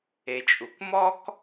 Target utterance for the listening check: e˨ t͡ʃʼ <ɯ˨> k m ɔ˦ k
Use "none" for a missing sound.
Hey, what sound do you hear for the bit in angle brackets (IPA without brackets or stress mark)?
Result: u˨